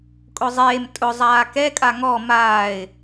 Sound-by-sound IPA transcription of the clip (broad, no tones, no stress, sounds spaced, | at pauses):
kʼ ʊ zˤ eː m tʼ ʊ zˤ aː k ɛ kʼ a ŋ ɔ m aː ɪ̯